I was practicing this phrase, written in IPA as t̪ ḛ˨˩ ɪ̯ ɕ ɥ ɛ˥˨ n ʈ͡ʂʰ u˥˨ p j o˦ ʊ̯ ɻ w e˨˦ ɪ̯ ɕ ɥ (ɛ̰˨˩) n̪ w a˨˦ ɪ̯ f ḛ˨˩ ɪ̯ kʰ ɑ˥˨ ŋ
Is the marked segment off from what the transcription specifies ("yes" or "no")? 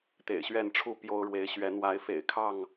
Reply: yes